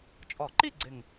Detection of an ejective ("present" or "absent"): present